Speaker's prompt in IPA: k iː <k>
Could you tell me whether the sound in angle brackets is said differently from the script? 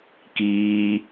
yes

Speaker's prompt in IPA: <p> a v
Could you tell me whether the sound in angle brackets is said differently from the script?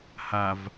yes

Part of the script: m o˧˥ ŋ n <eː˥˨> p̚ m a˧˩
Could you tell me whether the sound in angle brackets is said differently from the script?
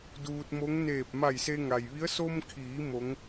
yes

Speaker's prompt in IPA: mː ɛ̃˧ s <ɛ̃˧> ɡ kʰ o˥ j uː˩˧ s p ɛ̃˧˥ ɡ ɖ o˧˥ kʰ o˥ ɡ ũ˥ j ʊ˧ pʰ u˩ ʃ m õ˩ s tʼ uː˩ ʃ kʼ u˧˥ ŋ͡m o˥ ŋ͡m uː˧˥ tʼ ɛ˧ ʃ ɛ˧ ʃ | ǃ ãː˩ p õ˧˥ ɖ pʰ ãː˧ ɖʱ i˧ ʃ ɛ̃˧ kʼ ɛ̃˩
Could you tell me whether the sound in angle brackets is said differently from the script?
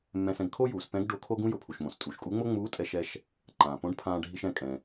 no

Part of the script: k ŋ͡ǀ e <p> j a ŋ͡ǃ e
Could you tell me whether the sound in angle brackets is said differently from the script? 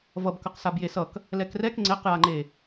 yes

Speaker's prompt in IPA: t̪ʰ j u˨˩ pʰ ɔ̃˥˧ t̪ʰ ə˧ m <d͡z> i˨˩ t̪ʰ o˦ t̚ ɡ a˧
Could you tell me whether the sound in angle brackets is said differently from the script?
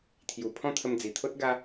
no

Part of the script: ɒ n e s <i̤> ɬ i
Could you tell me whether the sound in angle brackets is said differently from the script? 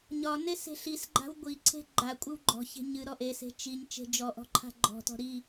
yes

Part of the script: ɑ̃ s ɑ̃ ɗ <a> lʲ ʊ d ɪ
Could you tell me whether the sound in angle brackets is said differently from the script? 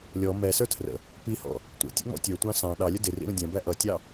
yes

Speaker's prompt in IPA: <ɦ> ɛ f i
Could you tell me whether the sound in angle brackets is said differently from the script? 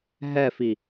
no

